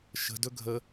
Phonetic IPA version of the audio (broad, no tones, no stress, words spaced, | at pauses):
ʃə̤ dɵɡʱə